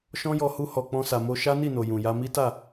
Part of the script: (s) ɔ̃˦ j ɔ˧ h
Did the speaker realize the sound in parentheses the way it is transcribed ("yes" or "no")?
no